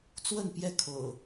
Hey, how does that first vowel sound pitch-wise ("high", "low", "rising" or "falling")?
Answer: falling